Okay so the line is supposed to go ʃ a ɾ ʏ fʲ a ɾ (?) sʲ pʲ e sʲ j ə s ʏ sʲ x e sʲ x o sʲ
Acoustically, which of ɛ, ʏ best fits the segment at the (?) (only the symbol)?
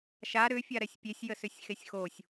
ɛ